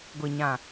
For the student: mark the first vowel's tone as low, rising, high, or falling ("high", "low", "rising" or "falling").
low